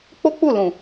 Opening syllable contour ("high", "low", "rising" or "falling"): high